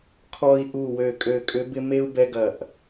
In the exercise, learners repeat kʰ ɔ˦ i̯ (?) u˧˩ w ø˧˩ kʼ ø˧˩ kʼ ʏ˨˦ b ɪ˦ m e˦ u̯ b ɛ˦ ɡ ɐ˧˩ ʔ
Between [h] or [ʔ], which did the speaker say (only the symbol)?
ʔ